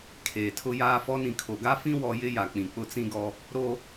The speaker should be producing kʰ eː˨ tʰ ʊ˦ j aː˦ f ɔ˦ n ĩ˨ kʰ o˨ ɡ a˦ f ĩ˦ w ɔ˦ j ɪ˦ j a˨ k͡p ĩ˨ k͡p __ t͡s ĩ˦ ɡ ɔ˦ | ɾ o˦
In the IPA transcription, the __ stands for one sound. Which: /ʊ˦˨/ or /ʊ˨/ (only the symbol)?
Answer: ʊ˦˨